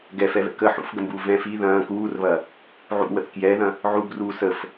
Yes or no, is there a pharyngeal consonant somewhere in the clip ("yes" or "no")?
yes